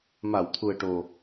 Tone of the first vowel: low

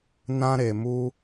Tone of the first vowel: high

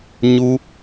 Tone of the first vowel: high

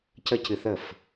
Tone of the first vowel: high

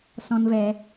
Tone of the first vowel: high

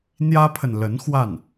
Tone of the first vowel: high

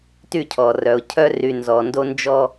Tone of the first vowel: falling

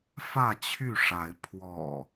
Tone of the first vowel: falling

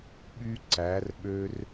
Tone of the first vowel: high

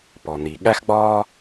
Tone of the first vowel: low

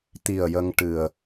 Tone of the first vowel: low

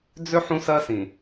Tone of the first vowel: high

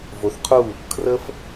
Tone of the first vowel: low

